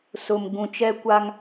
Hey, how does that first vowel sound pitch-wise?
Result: low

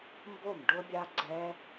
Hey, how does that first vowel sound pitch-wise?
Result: falling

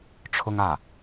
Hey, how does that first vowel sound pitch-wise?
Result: high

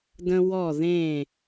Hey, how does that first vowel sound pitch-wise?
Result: high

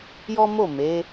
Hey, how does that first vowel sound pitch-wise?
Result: high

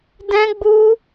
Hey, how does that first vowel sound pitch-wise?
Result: high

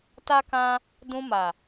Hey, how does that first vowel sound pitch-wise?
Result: high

